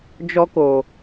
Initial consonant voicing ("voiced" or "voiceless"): voiced